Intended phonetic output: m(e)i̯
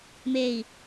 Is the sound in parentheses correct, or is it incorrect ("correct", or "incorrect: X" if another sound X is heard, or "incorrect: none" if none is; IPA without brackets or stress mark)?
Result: correct